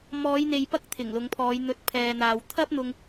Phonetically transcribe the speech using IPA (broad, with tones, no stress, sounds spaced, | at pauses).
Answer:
m ɔː˨˧ j n̪ e˨ j p ɐ˥ k̚ t̪ʰ ɪ˨˩ ŋ l ʊ˨˧ ŋ pʰ ɔː˨˧ j n̪ ɵ˨˥ t̚ pʰ ɛː˨ n̪ aː˨ w t̪ʰ ɐ˥ p̚ n̪ ʊ˧ ŋ